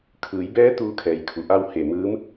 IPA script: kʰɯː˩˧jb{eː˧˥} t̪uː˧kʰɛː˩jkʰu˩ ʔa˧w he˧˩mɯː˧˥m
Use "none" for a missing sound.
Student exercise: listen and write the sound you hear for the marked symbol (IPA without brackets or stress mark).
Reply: ɛː˧˥